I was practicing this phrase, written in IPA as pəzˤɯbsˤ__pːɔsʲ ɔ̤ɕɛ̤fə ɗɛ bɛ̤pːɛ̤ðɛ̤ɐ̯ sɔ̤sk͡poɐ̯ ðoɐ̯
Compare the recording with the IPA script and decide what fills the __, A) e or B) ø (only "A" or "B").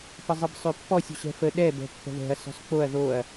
B